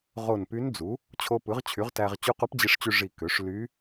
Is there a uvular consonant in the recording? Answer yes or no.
yes